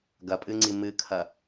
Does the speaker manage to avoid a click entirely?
no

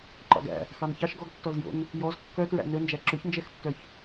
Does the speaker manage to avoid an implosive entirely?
yes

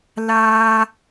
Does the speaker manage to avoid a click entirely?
yes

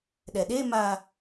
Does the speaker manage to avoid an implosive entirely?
no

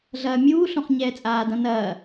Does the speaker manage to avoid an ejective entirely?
no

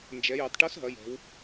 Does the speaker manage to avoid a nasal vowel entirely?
yes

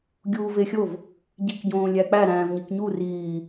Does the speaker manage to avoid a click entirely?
yes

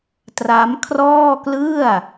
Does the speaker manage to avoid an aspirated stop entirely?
no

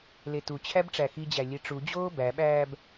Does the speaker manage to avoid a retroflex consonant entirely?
no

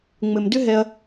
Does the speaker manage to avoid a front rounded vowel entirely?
no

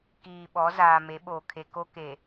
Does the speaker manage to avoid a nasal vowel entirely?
yes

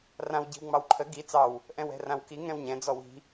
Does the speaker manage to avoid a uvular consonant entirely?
yes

